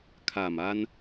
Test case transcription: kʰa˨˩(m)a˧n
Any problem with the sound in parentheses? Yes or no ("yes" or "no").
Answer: no